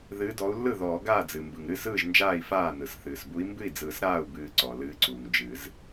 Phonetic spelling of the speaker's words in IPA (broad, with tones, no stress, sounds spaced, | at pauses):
ð ɨː˨˦ d ɔ˨˦ u̯ lː ɯ˥˩ ð ɔː˨˩˦ ɡ aː˥˩ d͡z ɨ˩ m b ɯ˩ ŋ ɾ ɨ˥˩ s ɯː˥˩ ʒ n d͡ʒ aː˥˩ i̯ f aː˥˩ n ɯ˩ s θ ɨː˩ s b u˨˦ i̯ m b ɨ˥˩ i̯ d͡z ɯː˨˩˦ s ɾ aː˥˩ u̯ b ɨː˨˩˦ ǀ ɔ˩ l ɨː˨˦ ǀ uː˩ ŋ d͡ʒ ɨ˨˩˦ z